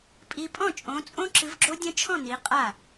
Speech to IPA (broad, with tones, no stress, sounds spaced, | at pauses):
pʼ i˦˥ pʼ ɔ̃˥˩ t͡ʃʼ õ˨˦ t͡sʼ õ˦˥ ǁ ɨ˨˦ v ɡ͡ǁ o˦˥ dʲ ɐ̃˦˥ t͡ʃʰ ɔ̃˥˩ n i˨˦ qʼ a˥˩